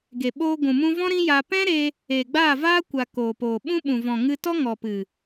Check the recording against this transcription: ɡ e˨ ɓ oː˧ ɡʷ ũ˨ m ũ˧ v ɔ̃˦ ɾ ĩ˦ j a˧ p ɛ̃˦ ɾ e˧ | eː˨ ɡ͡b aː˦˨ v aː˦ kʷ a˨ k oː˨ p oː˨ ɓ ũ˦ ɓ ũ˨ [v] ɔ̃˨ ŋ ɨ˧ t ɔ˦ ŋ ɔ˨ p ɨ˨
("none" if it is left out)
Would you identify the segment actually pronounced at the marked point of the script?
v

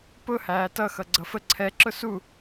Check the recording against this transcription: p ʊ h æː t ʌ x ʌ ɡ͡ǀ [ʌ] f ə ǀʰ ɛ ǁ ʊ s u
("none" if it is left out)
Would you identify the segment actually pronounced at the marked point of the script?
ʌ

